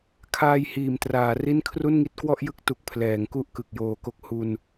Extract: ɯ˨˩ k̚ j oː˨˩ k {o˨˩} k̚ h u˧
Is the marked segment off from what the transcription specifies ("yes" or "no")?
yes